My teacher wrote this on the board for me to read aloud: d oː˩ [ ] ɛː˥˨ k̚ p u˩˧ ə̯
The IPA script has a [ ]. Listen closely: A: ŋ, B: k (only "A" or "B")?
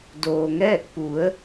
A